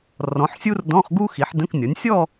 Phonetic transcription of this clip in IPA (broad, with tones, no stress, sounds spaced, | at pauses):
r ɔ̃˩˥ ħ sʲ u˥ r d ɔ̃˧˥˧ χ ɡ u˥ x i˩˥ ħ d ə̃˧˥˧ k nʲ ɔ˩˥ nʲ sʲ ɔ˥˧